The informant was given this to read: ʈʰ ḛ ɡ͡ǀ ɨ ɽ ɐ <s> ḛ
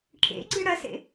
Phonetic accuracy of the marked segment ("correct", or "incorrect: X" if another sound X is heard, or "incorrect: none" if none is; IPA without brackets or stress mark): correct